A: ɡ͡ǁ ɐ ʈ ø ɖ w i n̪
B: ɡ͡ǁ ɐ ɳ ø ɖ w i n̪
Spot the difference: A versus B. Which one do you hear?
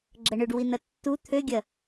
B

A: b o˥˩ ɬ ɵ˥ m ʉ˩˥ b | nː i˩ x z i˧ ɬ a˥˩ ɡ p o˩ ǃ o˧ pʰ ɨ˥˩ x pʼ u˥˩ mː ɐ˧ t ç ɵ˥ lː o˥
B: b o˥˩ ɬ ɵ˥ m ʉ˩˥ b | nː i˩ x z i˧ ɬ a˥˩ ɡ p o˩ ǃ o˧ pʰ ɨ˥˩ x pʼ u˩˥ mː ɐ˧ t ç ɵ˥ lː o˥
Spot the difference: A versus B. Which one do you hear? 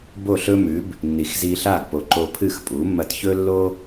B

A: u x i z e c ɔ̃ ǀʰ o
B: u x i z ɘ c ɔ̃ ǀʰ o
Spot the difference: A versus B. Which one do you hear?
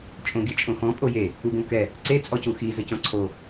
B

